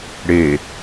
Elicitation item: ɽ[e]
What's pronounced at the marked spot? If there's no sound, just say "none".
e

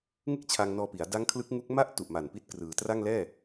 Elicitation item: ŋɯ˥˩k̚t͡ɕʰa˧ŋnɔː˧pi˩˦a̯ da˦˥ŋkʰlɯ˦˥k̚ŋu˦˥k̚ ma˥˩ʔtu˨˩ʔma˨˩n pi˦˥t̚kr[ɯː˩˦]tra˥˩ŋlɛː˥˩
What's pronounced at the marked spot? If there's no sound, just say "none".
ɯː˩˦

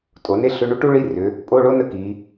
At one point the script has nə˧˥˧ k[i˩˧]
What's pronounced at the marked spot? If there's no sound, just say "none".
i˩˧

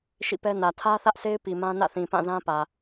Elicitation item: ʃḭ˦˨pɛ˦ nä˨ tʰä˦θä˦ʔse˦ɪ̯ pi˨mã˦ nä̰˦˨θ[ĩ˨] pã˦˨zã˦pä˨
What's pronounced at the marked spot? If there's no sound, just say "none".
ĩ˨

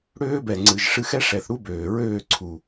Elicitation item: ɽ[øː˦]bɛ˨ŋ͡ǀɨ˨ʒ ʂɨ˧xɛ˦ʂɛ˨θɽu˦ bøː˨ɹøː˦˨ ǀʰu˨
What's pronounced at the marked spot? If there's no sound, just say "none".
øː˦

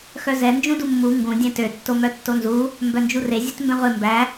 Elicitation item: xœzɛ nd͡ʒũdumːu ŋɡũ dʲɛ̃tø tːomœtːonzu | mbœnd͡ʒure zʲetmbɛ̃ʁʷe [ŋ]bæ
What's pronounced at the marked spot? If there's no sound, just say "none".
m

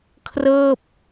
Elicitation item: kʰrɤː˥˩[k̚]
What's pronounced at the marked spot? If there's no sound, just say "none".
p̚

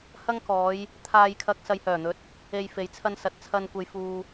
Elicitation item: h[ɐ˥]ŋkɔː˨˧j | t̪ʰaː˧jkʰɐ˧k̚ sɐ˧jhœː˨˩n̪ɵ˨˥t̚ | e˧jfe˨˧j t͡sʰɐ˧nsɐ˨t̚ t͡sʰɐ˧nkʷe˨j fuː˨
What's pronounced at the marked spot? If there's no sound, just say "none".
ɐ˥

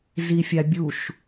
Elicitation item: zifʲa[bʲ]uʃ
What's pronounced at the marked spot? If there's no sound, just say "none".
bʲ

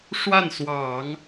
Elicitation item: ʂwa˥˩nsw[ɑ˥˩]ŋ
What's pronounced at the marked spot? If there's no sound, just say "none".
ɑ˨˩˦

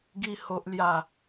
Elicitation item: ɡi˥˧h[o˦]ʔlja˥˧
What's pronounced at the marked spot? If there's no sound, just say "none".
o˦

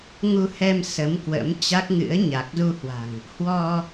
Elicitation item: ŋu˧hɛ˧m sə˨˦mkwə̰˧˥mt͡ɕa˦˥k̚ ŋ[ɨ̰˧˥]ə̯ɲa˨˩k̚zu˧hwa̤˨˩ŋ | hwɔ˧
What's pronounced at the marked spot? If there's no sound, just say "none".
ɨ̰˧˥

